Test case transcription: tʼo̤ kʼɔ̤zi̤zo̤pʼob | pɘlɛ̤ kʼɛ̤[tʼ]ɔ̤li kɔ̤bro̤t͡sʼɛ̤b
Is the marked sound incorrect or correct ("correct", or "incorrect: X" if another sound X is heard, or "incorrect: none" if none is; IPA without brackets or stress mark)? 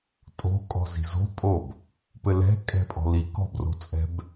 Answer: incorrect: pʼ